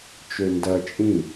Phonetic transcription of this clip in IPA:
t͡ʃøndɐ t͡ʃʼĩ

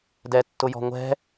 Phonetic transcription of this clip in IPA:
dɛtːʊjɔ̤ŋʷɛ̤

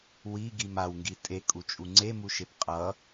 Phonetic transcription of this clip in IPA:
wiɡim awŋɡi tʼekʼut͡ʃʼu ŋ͡ǀemuʃep qʼʌ

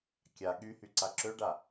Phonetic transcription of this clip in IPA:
kʲa ɠyhy ǀaǁøɖa

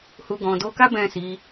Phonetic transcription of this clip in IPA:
hu˧ ɡɔ̃˨do˧ka˦ bɛ̃˦˨si˨˦

